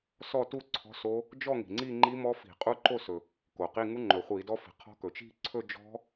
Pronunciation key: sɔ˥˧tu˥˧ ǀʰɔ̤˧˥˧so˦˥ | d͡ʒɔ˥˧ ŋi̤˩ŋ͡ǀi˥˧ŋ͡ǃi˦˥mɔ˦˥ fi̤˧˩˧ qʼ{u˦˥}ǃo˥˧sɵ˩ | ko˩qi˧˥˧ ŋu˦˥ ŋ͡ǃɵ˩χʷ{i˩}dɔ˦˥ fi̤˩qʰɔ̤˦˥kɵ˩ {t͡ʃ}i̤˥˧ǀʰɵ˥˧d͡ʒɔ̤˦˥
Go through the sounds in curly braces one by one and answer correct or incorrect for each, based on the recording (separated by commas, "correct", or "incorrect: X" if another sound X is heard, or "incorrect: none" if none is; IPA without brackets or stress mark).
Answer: correct, incorrect: i˧˩˧, correct